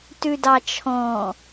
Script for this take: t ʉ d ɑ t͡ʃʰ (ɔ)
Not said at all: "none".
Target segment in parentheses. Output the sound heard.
ɔ̃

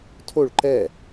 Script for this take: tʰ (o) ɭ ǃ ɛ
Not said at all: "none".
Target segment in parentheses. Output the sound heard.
o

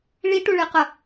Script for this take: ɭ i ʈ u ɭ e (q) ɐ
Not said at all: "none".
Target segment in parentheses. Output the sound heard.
q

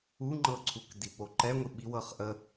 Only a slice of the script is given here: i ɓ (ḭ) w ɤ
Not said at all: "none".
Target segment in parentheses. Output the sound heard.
i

